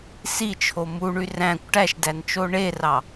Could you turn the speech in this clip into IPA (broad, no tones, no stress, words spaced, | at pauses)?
sit͡ʃʰo muɳy ræ̃kʷ ʈæʃdænt͡ʃo ɳerɑ